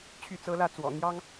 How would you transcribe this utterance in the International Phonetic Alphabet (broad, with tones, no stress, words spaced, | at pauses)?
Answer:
t͡ɕʰy˥˨t͡sɤ˦lä˥˨t͡swɔ̰˨˩ n̪jɑ˦ŋ